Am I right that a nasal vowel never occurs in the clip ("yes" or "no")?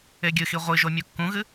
no